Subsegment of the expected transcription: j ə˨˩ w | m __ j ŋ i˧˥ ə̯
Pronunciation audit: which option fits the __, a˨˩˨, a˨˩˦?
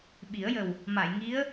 a˨˩˨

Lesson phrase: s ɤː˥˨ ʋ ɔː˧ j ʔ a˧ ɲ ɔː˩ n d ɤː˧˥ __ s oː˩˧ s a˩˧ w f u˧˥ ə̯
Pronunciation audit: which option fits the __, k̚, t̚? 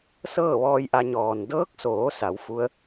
k̚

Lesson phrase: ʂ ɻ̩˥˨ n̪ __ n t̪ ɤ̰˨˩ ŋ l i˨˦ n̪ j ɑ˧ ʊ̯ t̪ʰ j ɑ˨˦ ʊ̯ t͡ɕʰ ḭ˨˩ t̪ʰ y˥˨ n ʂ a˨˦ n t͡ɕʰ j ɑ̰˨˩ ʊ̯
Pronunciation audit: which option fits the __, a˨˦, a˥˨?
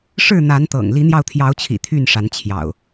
a˨˦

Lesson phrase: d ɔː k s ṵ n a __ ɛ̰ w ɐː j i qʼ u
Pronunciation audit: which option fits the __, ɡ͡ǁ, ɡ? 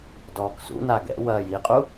ɡ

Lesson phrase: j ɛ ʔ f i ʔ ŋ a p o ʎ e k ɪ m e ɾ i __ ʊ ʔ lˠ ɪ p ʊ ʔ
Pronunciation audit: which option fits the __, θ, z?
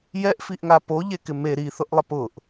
θ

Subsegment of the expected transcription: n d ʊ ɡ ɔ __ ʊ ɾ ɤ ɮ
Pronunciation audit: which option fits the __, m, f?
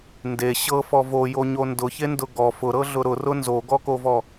f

